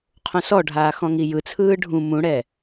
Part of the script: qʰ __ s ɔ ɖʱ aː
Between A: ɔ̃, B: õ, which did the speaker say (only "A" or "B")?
B